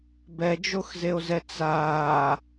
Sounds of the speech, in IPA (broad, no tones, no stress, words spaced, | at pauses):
bɛd͡ʒoxzeo̯zɛ t͡saː